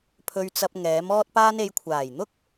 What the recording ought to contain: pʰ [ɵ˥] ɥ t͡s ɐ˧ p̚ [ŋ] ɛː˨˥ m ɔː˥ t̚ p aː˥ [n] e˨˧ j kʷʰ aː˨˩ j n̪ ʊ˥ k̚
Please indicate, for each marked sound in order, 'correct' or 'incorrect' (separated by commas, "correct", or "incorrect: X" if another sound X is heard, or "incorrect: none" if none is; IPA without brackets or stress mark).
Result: incorrect: ɵ˧, correct, correct